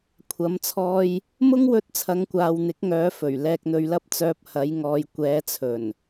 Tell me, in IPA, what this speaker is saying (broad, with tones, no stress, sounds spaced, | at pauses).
kʷʰ ɐ˨˧ m t͡sʰ ɔː˧ j | m ʊ˥ ŋ w ɵ˧ t̚ t͡sʰ ɐ˨˧ ŋ kʷ aː˨ w n̪ ɪ˨˥ k̚ ŋ œː˨˧ f ɵ˨˩ ɥ l ɛː˧ k̚ n̪ ɵ˧ ɥ l ɐ˥ p̚ t͡s œː˧ p̚ h ɐ˨˧ j ŋ ɔː˨ j kʷ ɛː˨˧ t͡sʰ ɵ˨˩ n